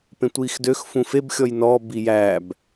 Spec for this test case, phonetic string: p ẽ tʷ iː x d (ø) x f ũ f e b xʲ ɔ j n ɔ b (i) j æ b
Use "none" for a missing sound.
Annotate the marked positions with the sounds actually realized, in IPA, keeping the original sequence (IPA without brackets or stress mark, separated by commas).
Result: ø, i